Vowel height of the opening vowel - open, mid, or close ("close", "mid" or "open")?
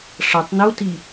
open